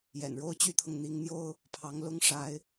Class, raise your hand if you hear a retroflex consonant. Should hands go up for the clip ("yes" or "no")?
yes